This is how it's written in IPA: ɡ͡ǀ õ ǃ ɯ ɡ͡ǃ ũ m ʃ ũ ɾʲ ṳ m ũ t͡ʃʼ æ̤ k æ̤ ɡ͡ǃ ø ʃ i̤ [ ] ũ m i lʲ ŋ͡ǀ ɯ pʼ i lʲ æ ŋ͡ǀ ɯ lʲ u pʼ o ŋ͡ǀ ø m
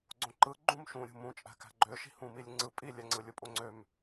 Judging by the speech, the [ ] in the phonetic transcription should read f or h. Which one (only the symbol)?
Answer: h